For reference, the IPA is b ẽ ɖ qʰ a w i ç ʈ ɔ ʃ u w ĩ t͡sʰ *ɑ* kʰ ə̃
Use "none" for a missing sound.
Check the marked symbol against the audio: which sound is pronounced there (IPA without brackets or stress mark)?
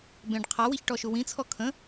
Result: ɔ